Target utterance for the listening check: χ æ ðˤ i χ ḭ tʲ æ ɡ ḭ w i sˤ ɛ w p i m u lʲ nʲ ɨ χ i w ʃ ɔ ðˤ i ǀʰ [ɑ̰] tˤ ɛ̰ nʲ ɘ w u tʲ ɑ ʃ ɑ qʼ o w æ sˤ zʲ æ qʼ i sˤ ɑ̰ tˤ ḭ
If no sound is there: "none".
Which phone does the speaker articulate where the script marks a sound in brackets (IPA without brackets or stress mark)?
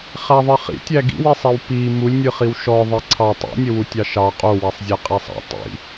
ɑ